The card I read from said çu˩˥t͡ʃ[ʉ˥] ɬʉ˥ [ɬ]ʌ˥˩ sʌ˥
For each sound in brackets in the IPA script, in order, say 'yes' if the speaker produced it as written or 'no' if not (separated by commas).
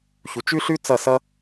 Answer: yes, no